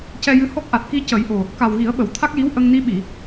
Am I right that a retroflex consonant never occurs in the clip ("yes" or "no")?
yes